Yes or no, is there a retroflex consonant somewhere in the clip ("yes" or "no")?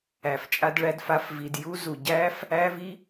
yes